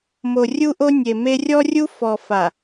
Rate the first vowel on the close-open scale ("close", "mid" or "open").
mid